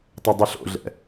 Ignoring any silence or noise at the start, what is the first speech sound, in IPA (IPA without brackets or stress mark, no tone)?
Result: tˤ